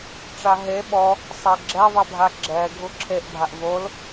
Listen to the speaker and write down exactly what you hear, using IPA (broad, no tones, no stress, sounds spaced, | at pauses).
ʈ͡ʂ a ɦ e ɓ ɔ | sˤ e ɡ͡ǁ ɛ ðˤ e bʱ a ɡ͡ǁ ɛ ɡʱ u ǁʰ e ʔ bʱ a ʔ v o l